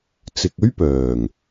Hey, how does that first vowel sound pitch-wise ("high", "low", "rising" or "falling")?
low